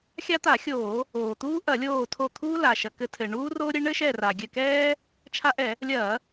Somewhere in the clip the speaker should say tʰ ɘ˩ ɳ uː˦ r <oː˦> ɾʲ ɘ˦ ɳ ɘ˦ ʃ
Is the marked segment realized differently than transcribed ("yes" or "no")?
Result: no